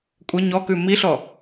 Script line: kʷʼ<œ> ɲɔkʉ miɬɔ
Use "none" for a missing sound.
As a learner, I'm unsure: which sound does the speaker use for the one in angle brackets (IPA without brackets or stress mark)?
ə